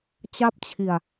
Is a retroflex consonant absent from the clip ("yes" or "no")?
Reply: yes